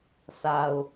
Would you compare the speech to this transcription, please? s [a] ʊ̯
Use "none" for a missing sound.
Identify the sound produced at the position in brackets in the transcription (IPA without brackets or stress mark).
a